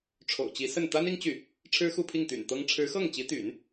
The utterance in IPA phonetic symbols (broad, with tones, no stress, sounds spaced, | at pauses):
ʈ͡ʂʰ o̰˨˩ ʊ̯ t͡ɕ i˧˥ s ə˥˩ n t̪ a˥ n i˥ ŋ t͡ɕ y˥˩ | ʈ͡ʂʰ ɻ̩˥ x u˥˧ pʰ i˥˩ ŋ t̪ y̰˨˩ n t̪ ɤ˥ ŋ ʈ͡ʂʰ ɻ̩˧˥ x ɤ˥˩ ŋ t͡ɕ i˧˥ t̪ y̰˨˩˦ n